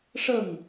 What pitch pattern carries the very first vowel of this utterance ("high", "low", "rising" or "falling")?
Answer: falling